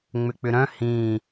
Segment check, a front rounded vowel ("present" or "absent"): present